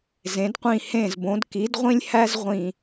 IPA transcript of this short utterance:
zẽ˩˧d qʷĩ˧˩hẽ˧˩zbõ˩˧d ki˩˧dʁʷĩ˧lʲ hæ˥zʁʷĩ˧˩

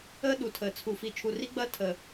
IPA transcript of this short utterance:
əː˦ɗu˨ tʰəː˨t͡sʰu˨fi˨ t͡ʃʰu˨ri˦ɡ͡bɐː˦ tʰəː˨

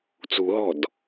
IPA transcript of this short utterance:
t͡sṳɦɔ̤d

